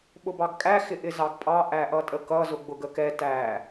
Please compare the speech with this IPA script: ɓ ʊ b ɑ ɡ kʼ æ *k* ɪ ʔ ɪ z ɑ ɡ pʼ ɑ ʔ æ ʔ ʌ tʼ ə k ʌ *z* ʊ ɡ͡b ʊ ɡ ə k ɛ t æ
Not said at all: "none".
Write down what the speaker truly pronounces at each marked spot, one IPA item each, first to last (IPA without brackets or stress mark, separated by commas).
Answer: x, z